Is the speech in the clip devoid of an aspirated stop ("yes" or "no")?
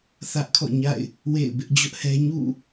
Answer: no